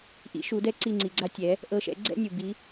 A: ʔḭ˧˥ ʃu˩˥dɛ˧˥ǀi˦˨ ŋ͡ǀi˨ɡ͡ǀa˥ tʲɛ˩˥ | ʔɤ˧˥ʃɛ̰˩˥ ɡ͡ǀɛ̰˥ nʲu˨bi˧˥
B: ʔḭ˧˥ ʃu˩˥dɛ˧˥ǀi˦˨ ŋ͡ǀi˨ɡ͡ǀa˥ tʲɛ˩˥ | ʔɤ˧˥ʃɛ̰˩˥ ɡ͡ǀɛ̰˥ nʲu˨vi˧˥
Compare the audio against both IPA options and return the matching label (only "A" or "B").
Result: A